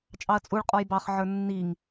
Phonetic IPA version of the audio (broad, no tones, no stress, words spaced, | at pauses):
t͡ʃʼɑɐ̯t͡sʼuɭ qʼɔjbɑχ ʕə˞nːiŋ